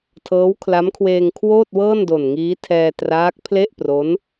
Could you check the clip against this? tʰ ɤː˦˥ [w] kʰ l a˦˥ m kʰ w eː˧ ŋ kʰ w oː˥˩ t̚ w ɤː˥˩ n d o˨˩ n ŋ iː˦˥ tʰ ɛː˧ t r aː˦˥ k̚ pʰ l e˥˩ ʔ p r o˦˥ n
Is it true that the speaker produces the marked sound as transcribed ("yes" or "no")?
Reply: yes